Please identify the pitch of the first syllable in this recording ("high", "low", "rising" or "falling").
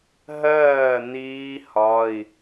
falling